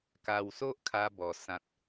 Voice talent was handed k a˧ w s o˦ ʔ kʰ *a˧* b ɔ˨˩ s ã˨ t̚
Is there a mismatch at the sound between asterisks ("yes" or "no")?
no